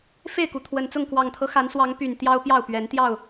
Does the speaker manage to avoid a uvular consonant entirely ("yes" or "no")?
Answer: yes